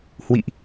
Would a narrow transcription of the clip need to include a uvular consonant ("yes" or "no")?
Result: no